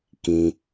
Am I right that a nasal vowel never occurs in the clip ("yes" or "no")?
no